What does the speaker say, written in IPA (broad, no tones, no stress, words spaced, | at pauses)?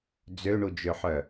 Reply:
d͡zøɳud͡ʒøħœ